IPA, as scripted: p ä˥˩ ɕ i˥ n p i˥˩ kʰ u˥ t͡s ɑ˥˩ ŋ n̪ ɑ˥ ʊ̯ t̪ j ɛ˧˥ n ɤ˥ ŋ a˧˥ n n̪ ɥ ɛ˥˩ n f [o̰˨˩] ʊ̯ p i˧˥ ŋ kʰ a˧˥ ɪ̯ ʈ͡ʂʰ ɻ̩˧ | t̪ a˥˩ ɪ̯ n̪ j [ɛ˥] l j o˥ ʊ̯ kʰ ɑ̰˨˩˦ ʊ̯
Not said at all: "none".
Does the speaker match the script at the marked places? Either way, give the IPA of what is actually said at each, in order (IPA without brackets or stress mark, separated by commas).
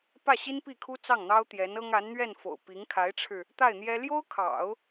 o̰˨˩, ɛ˥